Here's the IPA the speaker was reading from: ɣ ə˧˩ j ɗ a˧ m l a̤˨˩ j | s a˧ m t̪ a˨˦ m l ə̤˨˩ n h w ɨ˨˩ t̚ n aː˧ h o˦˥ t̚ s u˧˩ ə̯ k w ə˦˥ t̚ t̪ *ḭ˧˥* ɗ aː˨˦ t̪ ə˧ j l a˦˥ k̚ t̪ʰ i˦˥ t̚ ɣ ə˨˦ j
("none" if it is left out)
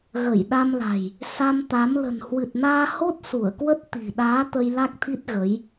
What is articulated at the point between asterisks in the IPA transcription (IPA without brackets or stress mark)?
i̤˨˩